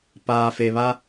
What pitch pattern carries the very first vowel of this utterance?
low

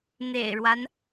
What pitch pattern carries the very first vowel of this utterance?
low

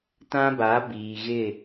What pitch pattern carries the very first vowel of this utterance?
high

